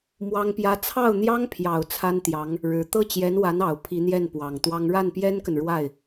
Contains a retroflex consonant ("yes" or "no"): yes